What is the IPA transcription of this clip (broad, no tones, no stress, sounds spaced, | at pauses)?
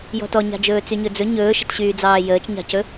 j ɔ̤ t ɔ ɲ ɑ̤ d͡ʒ ɵː t͡s y ɲ ɵ d͡z ɵ ɲ ɵː ʃ ə̤ t ɕ yː d͡z ɑː j əː t͡ʃ ɲ ɑ̤ c ɵ